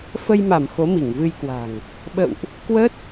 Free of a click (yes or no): yes